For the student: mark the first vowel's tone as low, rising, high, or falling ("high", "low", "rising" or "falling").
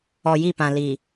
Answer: low